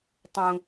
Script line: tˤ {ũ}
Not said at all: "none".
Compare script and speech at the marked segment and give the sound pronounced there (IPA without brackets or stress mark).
ũ